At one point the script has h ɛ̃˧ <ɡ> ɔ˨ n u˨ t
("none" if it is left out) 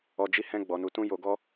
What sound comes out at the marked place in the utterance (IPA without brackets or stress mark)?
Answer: ɡ͡b